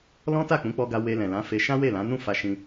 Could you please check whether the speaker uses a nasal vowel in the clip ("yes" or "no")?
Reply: yes